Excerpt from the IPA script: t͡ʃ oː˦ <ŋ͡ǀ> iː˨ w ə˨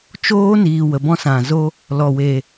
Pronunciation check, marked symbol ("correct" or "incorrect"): incorrect